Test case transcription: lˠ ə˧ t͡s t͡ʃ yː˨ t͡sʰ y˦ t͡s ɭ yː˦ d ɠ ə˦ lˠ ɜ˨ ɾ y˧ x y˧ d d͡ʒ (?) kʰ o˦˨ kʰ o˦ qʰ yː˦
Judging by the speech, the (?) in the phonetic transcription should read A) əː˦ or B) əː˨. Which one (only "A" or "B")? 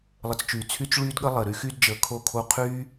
B